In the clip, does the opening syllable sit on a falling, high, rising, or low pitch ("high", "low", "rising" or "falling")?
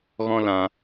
high